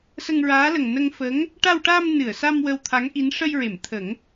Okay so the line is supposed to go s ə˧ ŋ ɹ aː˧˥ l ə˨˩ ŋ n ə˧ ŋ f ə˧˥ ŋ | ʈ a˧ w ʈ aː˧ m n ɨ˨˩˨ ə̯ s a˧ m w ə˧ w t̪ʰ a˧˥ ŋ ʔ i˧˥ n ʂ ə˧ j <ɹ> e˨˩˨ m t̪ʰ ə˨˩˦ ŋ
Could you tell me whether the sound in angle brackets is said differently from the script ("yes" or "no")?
no